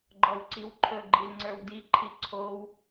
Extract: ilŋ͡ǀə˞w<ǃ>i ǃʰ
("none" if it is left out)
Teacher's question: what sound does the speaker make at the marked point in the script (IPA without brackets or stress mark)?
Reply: d